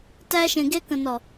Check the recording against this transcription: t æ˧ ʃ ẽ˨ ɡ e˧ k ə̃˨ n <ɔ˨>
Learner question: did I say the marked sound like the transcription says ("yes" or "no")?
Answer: yes